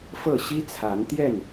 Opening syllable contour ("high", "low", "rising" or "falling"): falling